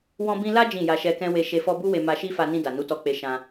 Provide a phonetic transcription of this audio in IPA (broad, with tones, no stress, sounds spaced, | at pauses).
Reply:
w ɔ̃˧ b ĩ˧ l a˦ d͡ʒ ĩ˦˨ j a˧ ʃ ɛ˧ k ɛ̃˦ w e˧ ʃ e˧ f ɔ˧ b u˦ w e˧ m a˧ ʃ i˦ f a˧ n ĩ˧ d a˨ n u˨˦ t ɔ˧ k͡p e˧ ʃ ã˧